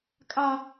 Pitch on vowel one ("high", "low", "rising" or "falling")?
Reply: high